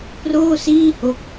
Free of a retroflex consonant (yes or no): yes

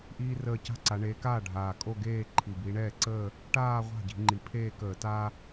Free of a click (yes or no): no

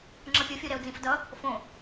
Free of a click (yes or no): no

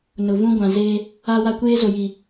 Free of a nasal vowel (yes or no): no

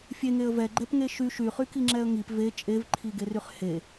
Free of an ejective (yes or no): no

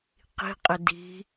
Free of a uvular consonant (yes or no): no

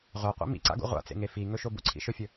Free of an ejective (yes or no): yes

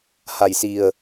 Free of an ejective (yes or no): yes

